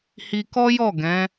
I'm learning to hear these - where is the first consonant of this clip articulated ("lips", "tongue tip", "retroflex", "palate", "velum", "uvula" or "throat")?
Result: throat